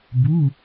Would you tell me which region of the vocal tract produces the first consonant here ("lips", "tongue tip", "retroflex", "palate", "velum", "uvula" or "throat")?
lips